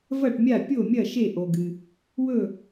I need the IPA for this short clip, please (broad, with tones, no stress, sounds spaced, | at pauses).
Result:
v ɐ˥˨ ʈ mʲ a˥˨ pʲ o˥˨ mʲ ɐ˥˨ ʃ e˥˨ ʔ o˨ ɡ ɨ˨ | w ɵ˥˨